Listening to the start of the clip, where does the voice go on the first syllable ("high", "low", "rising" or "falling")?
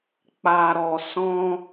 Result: low